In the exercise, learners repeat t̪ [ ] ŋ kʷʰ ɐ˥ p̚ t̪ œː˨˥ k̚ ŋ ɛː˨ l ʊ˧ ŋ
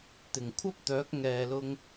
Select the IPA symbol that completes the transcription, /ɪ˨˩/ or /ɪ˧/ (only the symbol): ɪ˨˩